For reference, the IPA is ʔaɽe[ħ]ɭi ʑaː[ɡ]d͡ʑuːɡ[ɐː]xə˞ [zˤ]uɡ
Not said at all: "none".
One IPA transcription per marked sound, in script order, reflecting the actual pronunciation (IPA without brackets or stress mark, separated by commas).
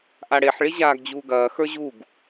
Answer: ħ, ɡ, ɐː, ʑ